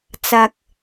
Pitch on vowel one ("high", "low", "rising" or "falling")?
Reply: low